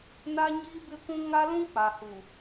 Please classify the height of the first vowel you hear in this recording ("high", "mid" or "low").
low